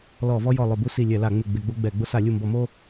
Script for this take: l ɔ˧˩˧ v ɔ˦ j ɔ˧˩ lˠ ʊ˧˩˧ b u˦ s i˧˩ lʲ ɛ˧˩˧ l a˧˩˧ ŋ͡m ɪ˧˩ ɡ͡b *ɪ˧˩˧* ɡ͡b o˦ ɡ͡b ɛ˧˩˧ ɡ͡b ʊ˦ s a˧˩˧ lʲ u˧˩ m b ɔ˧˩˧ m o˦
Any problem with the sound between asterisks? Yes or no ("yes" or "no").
no